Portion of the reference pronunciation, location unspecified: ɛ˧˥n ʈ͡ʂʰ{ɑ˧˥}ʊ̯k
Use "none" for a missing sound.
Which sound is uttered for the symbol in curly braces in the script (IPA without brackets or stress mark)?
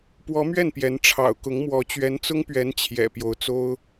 ɑ̰˨˩